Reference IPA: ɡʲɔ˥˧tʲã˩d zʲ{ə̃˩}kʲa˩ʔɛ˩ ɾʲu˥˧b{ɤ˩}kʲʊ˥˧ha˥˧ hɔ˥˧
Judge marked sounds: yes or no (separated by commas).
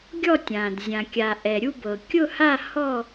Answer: no, yes